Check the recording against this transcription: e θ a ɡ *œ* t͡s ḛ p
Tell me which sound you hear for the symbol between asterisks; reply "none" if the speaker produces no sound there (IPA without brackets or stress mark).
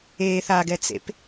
ɛ